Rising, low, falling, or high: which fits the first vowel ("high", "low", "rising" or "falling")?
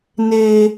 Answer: high